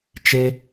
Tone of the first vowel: high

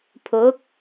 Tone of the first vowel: rising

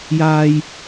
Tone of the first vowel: low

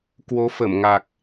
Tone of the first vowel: rising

